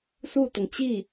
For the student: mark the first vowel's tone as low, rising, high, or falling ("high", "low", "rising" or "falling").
falling